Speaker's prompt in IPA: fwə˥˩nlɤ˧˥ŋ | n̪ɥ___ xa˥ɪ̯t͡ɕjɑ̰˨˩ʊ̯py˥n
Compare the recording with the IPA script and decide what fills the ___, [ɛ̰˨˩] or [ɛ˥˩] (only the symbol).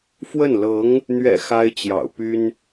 ɛ̰˨˩